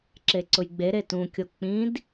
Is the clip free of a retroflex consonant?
yes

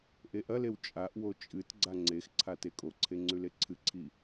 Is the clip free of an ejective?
no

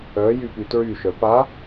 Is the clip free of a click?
yes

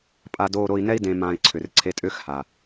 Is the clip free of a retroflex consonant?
yes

